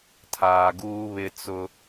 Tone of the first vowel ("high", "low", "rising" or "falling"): low